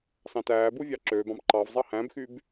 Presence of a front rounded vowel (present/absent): present